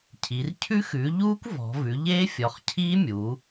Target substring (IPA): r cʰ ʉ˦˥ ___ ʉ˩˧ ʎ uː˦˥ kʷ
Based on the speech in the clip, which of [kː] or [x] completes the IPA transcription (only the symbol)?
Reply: x